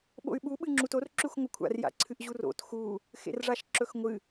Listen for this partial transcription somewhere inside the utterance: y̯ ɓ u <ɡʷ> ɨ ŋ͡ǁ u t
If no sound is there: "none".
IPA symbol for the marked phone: ɓ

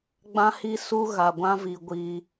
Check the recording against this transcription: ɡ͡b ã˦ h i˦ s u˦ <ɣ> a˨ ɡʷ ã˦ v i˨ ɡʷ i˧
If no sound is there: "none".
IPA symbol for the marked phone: ɣ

